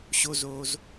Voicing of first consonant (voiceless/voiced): voiceless